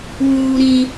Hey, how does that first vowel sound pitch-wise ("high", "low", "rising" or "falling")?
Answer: low